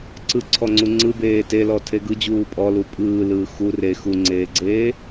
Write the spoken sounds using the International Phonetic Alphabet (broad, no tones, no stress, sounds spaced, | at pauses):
ǀ ɯ ǀʰ ɔ ŋ͡ǀ u ŋ͡ǀ ɯ b eː t e l ɔ tʰ e ɡ ɯ d͡ʑ uː pʼ ɔ l u pʼ ɯː l ɯː x u r e x u ŋ͡ǀ eː ɡ͡ǀ eː